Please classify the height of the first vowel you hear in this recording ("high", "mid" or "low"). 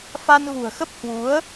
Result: low